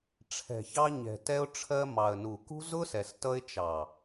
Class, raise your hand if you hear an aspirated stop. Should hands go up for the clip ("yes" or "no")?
yes